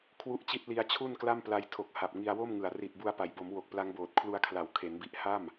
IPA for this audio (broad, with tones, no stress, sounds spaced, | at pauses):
kʰ w u˦˥ ʔ t͡ɕ i˦˥ t̚ l i˧ a̯ t͡ɕʰ u˥˩ n k l a˥˩ m p l a˦˥ j tʰ o˨˩ k̚ h a˨˩ p̚ ŋ i˧ a̯ w o˥˩ m ŋ ɯ˨˩ a̯ r i˨˩ t̚ b u˧ a̯ p a˩˦ j b o˩˦ m w o˨˩ k̚ p l a˦˥ ŋ b oː˨˩ t̚ kʰ l u˧ a̯ kʰ l a˩˦ w kʰ e˩˦ n b i˨˩ ʔ h a˥˩ m